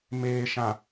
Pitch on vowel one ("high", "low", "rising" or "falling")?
low